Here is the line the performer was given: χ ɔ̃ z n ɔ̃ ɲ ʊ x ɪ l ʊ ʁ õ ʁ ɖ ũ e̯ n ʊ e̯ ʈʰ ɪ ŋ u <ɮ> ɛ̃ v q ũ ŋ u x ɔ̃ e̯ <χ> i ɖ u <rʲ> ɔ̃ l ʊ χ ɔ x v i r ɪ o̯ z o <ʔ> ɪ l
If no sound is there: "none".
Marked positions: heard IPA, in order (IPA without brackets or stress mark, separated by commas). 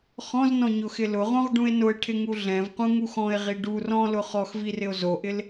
ɮ, ʁ, r, ʔ